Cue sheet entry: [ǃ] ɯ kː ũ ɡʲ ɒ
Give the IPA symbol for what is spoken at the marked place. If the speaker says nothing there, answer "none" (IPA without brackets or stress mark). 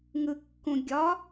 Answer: ŋ